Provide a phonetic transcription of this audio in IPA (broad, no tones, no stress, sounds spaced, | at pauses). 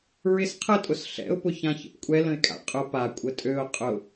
ɹ ɪ s qʰ ə tʼ ʊ s ɬ ɛ̰ ʊ̯ p ʊ ç ã ç ə̰ p kʷʼ ɛ l ə̃ ɪ̯ kʼ a̰ qʼ ʊ p a kʷʼ ə tʼ ø ʊ̯ qʼ ʊ